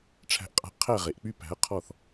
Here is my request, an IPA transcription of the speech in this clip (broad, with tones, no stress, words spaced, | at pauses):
ʈ͡ʂʰæ̤˧ʔqʼa̤˧ʔqʰæ˦˨ʁe˨ʔ k͡py˦pæ̤˨˦ɐ̯qʰɔ˦˨θ